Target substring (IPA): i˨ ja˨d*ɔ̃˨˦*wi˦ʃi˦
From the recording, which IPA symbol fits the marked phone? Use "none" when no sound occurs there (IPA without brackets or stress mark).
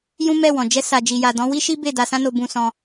ɔ̃˨˦